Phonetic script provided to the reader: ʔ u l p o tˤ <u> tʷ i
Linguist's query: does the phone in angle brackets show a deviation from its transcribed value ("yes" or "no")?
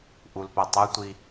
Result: no